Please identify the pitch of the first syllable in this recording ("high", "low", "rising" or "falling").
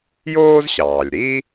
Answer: high